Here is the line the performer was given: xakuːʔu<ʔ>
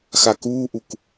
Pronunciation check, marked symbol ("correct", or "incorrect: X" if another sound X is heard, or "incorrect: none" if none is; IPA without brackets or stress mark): incorrect: k